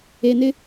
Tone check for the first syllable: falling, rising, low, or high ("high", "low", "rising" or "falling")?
low